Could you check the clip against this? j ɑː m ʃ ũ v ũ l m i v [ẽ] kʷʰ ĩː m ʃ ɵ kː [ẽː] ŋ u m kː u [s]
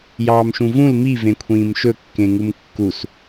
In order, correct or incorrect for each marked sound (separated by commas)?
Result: correct, incorrect, correct